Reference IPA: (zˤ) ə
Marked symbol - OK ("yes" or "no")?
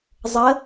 yes